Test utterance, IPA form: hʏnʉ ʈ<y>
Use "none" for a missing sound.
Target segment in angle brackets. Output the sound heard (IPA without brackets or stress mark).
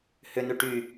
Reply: y